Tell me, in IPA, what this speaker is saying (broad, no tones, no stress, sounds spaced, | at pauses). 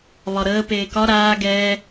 β ɒ ɾ əː p eː k ɒ ɾ aː ɡ ɛː